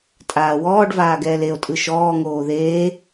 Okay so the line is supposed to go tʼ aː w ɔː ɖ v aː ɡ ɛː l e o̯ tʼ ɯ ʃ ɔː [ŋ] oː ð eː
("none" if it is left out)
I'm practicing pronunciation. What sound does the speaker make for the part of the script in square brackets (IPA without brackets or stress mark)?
ŋ